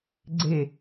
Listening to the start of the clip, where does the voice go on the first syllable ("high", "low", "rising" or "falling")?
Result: falling